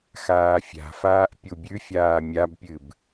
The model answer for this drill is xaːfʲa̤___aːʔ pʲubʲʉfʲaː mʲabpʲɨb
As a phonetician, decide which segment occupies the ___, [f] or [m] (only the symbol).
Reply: f